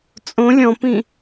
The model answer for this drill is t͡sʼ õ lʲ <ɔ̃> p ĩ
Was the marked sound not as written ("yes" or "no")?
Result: no